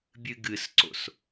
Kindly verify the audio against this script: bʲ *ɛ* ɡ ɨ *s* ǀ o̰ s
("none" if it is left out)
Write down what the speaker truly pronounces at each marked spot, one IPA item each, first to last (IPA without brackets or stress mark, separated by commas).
ɨ, s